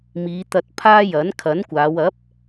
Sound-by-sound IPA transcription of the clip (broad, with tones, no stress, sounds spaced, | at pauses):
m iː˨˧ t̪ ɐ˧ t̚ pʰ aː˥ j ɐ˨˥ n kʰ ɐ˨˥ n kʷ aː˨˧ w ɐ˨˥ p̚